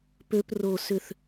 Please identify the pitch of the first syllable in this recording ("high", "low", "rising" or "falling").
high